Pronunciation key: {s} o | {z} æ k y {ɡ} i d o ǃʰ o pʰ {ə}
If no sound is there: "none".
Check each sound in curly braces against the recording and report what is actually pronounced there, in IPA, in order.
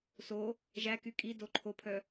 s, ʒ, kʼ, œ

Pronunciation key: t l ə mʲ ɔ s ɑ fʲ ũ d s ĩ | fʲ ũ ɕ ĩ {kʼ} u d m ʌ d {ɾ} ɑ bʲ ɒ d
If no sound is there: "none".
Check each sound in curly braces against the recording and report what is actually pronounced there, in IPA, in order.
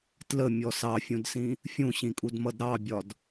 kʼ, ɾ

